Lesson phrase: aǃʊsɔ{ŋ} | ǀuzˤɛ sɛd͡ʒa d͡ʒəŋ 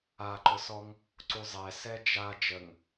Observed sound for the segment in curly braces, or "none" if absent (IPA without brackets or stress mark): ŋ